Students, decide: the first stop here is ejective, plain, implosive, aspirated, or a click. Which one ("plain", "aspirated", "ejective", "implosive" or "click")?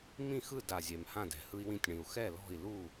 plain